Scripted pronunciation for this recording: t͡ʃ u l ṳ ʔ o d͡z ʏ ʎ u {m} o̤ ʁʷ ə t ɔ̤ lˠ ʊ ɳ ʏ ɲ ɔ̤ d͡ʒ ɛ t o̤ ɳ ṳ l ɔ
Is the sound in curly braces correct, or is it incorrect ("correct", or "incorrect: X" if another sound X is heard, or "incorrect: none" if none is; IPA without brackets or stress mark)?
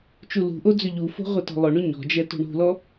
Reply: incorrect: f